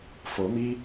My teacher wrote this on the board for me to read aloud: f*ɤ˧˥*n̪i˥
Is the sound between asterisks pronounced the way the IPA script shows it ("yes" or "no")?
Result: yes